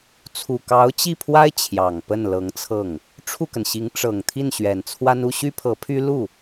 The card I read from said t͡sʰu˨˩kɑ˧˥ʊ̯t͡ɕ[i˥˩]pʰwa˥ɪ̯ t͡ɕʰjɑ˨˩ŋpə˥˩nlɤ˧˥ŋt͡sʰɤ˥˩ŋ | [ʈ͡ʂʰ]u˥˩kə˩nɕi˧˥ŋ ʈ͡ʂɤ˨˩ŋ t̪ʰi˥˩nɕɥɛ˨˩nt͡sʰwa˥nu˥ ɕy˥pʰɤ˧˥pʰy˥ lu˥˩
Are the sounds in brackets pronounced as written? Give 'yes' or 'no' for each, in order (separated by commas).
yes, yes